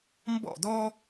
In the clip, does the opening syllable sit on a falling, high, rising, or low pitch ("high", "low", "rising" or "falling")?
falling